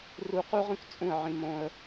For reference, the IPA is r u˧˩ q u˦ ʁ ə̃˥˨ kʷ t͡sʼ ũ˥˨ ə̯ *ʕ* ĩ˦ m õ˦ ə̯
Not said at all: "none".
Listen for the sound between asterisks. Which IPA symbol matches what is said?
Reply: ʕ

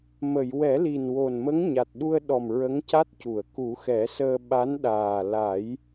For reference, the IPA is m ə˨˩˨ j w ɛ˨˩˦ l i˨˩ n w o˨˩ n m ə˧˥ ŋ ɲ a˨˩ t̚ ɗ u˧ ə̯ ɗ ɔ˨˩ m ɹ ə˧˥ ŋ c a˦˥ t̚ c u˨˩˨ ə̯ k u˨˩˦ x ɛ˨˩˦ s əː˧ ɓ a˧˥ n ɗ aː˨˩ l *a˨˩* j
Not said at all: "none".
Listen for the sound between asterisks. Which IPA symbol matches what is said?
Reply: a˨˩˦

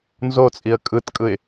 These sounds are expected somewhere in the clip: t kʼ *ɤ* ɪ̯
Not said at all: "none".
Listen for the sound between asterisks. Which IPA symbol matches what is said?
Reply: ɯ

